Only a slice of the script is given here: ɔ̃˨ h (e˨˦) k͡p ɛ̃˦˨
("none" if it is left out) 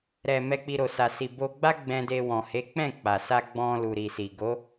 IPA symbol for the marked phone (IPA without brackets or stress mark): e˨˦